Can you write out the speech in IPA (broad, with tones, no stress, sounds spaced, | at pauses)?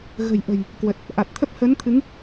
ɣ ə̤˨˩ j ʔ ə̤˨˩ j | k w ə˨˩ t̚ | ʔ a˨˩ t̚ t̪ʰ ə˦˥ p̚ h əː˨˦ n t̪ʰ ɨ˨˦ ŋ